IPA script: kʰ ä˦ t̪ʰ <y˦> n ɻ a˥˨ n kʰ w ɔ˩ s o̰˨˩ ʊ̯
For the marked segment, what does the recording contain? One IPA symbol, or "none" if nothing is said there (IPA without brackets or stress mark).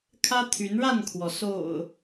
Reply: y˨˦